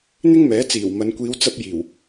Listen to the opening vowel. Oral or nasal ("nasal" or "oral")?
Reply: oral